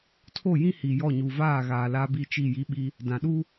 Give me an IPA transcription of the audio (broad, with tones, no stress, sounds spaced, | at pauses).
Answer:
tʰ o˦˨ j ĩ˦ h i˨ j ɔ˦˨ ɲ u˨ v aː˦˨ ɣ aː˨ l a˦ b i˦ t͡ʃ i˦˨ j i˦ ɓ i˦ | d ã˨ ɗ u˦